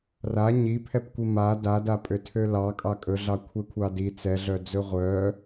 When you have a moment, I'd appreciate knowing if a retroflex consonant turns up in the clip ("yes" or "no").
no